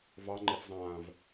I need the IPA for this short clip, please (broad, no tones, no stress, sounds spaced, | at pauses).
v ɑ ŋ͡ǃ ɛ f zˤ ãː v